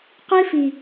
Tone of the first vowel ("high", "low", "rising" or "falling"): high